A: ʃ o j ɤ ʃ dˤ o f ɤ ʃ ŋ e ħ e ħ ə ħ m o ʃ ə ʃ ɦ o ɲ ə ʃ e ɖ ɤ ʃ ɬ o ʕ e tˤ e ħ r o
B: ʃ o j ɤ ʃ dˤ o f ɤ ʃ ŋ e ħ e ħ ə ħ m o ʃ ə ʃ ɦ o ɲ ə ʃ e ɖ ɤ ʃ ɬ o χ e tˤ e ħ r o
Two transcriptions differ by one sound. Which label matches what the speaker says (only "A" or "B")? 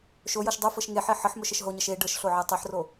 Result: A